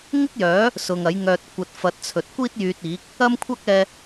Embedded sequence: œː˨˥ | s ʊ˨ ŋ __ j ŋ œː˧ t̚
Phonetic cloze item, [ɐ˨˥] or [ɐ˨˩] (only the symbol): ɐ˨˥